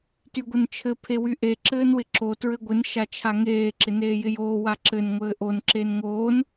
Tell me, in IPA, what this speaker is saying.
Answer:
t y ɡʷ ɘ n t͡ʃʰ ɘ pʰ e w y ʔ e ǁ ɘː n w ɪ ǁ o t ɹ ɘ ɡʷ ɪ n ʃ a t͡ʃʰ a ŋ eː ǁ ɪ n eː j ɪ j oː w a ǁ ɘ n ŋʷ ɘː ʔ o n ǁ e n ŋ oː n

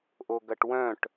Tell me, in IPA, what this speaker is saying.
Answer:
ʔ o ɡ ɐ ʈ w œ̃ ʈ

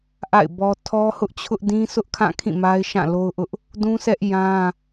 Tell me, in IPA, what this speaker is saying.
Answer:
ʔ a̰˦˨ ɪ̯ b ɔ˦ tʰ ɔ˦ h ʊ˦ ʔ t͡ɕʰ ʊ˦ ʔ d ĩ˦ s ʊ˦ ʔ kʰ ã˦˨ kʰ ĩ˦˨ m a˦ ɪ̯ ʃ ã˦˨ l o˦ ʊ̯ ʔ ʊ˦ ʔ | d ũ˦ sʰ ɛ˦ ʔ j ã˦

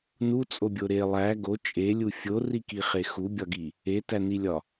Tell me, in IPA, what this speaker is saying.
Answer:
n u t͡sʼ o bʲ o ɾ e lˠ æ ɡ o t͡ʃʼ e lʲ u fʲ o r i k i χ e x u bʲ ɒ ɡ i | e t æ n i lʲ ɒ

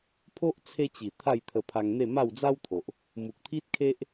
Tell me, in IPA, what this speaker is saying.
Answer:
pʰ o˦ ʔ t͡sʰ e˧ t͡ɕ i˨˩ t̪ʰ a˥˧ j t̪ʰ ə˧ pʰ a˧ ŋ n̪ e˥˧ m a˥˧ w d͡z a˦ w t̪ʰ o˨ ʔ | m u˨ k̚ t̪ʰ i˦ t̚ kʰ e˦ ʔ

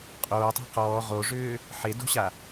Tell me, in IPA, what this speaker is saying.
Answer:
qʼ oː tˤ e̤ q ɔː ʁ o ʐ ʏː | ħ e d o̤ ɕ a

